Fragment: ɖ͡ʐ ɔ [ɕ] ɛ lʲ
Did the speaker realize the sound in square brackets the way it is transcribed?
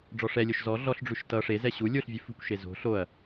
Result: no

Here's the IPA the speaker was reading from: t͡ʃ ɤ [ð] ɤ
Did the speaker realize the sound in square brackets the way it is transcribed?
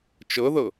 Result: yes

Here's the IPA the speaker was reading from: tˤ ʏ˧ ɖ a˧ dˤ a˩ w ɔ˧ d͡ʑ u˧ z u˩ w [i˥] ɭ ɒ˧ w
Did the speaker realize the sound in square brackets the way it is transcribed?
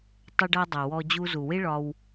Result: yes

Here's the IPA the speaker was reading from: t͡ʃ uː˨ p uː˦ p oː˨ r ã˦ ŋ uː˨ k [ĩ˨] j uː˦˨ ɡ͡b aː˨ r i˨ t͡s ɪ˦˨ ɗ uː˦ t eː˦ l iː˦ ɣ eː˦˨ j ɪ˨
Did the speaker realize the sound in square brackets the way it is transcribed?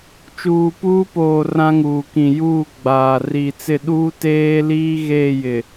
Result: yes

